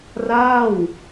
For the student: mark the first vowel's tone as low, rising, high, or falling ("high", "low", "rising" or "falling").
falling